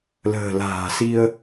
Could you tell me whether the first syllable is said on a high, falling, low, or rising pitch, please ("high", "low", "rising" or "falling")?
low